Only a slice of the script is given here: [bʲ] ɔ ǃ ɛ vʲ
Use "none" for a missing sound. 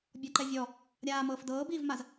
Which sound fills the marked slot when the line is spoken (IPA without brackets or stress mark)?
bʲ